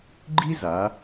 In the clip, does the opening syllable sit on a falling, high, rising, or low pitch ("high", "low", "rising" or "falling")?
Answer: high